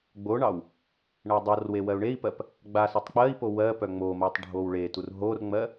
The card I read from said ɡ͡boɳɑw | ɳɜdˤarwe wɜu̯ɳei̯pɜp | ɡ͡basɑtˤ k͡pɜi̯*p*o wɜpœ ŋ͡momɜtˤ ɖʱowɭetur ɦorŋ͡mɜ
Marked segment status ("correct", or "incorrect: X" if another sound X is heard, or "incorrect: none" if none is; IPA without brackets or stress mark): correct